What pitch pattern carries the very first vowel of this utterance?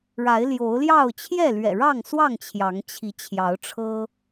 rising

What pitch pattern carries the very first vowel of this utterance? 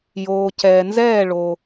low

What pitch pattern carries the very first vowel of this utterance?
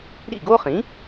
falling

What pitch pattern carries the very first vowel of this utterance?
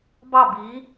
falling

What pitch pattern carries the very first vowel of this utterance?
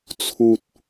low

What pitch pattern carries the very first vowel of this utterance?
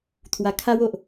low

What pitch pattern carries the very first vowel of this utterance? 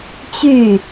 falling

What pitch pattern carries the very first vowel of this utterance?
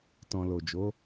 low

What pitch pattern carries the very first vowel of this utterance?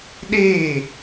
falling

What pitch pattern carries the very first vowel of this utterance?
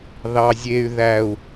low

